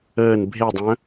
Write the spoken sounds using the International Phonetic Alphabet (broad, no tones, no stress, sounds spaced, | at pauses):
əː n bʱ e dˤ œ̃